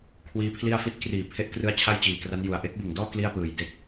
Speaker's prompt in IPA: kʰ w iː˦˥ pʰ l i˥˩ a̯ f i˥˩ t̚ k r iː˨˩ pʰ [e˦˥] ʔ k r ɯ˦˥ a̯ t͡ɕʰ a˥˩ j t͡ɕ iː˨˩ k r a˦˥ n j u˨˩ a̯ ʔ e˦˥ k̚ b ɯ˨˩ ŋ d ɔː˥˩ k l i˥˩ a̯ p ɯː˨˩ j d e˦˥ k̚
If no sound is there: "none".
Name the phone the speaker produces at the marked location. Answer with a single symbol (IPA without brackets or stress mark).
e˦˥